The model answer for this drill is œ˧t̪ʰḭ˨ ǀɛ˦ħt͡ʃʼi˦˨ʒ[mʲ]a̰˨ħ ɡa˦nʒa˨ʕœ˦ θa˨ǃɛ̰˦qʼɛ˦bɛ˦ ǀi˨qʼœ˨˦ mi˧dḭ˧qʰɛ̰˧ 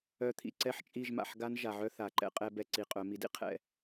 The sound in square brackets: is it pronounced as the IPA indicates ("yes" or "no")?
no